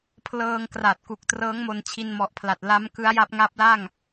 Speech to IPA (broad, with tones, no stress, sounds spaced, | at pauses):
pʰ l ɤː˧ ŋ k r a˨˩ t̚ k u˨˩ k̚ t r ɤː˦˥ ŋ m o˧ n t͡ɕʰ i˧ n m ɔ˨˩ ʔ pʰ l a˨˩ t̚ l a˦˥ m k ɯ˦˥ a̯ j a˦˥ p̚ ŋ a˦˥ p̚ l a˥˩ ŋ